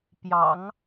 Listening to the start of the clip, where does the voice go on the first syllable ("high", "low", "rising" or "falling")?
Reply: low